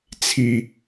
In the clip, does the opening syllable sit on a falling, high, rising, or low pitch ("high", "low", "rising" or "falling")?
low